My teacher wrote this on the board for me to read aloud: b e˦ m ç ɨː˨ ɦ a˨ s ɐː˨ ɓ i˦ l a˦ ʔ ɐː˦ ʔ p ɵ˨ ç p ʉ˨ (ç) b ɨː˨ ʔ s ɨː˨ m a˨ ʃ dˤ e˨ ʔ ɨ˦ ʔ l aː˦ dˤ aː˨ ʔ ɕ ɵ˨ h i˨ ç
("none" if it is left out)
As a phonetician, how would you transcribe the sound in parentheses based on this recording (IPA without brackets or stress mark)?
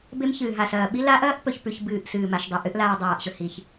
ç